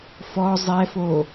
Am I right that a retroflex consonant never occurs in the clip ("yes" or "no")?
yes